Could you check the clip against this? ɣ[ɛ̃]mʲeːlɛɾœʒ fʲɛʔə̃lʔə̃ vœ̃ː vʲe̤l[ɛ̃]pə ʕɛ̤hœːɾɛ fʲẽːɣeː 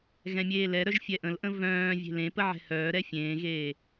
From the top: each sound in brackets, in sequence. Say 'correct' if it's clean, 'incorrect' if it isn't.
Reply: correct, incorrect: ẽ

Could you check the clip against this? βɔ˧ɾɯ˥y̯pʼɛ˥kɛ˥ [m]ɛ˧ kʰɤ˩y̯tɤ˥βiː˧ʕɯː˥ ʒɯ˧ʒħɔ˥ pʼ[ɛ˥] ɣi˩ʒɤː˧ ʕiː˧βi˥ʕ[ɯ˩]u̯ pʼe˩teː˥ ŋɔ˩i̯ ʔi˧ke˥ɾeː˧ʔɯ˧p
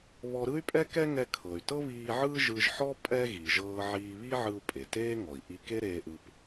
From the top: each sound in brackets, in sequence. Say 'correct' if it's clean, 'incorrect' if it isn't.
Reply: incorrect: ŋ, correct, incorrect: ɯ˧

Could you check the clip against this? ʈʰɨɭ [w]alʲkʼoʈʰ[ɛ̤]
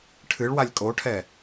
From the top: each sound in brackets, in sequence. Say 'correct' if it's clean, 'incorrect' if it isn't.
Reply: correct, incorrect: ɛ

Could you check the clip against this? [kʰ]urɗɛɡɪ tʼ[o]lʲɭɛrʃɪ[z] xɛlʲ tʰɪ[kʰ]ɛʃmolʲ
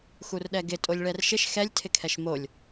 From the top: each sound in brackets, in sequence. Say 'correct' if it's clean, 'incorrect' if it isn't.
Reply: incorrect: x, correct, incorrect: ʃ, correct

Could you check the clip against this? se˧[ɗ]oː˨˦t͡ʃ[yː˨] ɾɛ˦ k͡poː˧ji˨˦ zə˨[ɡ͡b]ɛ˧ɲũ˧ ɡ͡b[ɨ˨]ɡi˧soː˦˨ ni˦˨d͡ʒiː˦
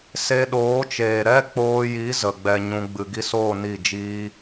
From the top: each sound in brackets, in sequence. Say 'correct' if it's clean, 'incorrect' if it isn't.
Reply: correct, incorrect: eː˨, correct, correct

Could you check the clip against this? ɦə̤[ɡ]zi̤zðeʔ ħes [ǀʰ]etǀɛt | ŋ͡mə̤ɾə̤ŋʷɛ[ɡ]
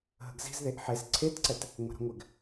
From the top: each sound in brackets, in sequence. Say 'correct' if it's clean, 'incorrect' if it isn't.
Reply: correct, correct, correct

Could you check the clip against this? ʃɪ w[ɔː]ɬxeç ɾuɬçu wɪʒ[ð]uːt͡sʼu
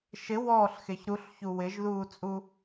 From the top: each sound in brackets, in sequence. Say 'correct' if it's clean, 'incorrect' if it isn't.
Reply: correct, correct

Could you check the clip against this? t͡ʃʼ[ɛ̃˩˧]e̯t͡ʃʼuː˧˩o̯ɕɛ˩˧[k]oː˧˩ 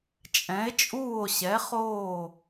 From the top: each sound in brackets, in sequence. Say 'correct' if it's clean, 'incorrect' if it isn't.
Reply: correct, incorrect: χ

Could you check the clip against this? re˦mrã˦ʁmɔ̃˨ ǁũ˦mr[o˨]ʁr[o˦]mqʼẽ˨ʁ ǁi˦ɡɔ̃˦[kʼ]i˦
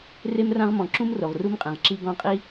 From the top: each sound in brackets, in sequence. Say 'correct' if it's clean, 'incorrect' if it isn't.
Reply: correct, incorrect: u˦, incorrect: qʼ

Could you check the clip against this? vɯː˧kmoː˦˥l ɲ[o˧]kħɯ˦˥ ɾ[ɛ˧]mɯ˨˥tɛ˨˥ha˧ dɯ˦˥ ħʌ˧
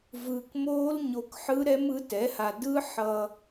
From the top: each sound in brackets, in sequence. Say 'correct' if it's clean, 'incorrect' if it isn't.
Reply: correct, incorrect: ɛ˦˥

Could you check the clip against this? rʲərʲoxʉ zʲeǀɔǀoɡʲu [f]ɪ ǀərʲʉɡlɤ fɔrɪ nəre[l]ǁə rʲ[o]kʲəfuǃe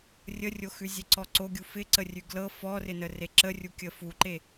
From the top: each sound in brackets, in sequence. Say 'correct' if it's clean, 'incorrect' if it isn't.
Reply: correct, incorrect: none, incorrect: u

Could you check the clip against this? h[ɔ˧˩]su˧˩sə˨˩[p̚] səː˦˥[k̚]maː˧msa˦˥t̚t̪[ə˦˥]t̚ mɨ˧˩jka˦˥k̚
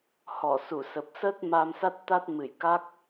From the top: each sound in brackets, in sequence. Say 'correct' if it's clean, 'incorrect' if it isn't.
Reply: correct, correct, incorrect: t̚, incorrect: a˦˥

